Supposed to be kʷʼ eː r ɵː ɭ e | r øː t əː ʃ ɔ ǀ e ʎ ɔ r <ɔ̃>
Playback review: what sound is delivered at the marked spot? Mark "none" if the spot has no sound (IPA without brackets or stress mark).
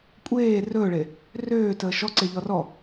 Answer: ɔ